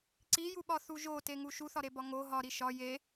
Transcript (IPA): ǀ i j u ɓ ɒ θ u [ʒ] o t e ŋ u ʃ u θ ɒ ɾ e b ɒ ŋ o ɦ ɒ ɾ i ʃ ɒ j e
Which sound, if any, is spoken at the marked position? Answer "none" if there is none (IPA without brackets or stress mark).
ʒ